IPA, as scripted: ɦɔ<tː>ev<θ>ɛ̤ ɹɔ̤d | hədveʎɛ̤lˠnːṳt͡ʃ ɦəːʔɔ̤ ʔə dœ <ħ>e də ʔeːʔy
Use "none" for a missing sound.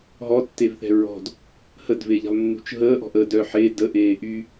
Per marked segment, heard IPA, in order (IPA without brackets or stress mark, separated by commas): tː, θ, ħ